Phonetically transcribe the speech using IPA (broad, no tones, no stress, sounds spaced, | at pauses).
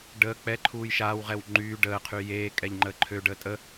ɖ əː k͡p ɛ ǃʰ uː j ʃ aː w ʁ ɛ w ŋ͡ǃ yː ɖ əː qʰ y j eː kʼ ɛ ʎ ŋ͡ǃ əː ǃʰ ø ɖ əː tʼ ə